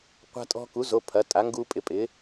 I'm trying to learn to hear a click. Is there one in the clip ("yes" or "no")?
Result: no